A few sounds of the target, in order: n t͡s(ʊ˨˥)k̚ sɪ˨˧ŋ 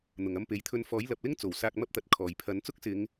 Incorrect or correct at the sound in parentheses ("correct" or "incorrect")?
incorrect